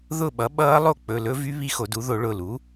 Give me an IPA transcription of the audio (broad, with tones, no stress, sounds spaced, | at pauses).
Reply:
ð ʊ˥˨ ɓ ʌ˩˥ ɓ ʌː˦˥ lˠ o˥˨ k͡p ɵ˩˧˩ l ɵ˦˥ v y˦˥ β i˦˥ x o˨˩˦ d u˩˥ ð o˨˩˦ ɭ ʊ˩˧˩ l u˩˥